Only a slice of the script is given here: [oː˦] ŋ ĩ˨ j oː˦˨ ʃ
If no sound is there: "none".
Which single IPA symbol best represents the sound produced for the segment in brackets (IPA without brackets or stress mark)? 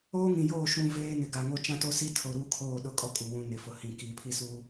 oː˦